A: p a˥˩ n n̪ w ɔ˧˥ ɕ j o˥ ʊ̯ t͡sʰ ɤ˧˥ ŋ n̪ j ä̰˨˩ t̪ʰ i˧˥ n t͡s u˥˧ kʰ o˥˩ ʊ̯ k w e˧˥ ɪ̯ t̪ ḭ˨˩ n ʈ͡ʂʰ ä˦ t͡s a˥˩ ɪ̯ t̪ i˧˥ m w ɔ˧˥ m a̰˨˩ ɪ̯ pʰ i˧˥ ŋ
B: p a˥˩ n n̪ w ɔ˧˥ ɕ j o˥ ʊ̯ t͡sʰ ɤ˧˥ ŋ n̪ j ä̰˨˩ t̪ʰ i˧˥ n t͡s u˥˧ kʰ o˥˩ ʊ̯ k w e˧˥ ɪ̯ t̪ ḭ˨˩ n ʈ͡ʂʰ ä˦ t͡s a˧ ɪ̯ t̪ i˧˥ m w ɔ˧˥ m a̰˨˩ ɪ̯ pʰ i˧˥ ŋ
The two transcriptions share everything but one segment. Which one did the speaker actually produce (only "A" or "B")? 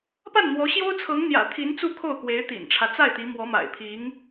A